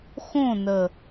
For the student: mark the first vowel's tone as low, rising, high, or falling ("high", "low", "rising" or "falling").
falling